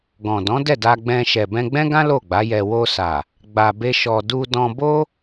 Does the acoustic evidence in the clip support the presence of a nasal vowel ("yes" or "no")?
yes